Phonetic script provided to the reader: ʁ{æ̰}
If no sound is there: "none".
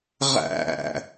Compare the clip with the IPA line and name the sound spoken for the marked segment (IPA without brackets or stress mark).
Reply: æ̰